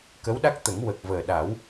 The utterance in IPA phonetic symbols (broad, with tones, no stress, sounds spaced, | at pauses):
k ə˧˥ w ɗ a˦˥ k̚ t̪ ə˨˩˦ ŋ w ə˨˩ k̚ v əː˨˩ ɗ a˨˩˦ w